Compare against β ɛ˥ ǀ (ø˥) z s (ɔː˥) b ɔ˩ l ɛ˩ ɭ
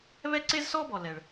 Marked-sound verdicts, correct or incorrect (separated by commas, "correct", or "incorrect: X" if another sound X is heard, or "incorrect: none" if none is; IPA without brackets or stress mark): incorrect: e˥, correct